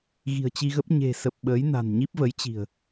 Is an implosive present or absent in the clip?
present